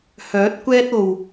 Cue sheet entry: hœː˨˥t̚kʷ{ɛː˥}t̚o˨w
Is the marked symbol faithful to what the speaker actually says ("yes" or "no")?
yes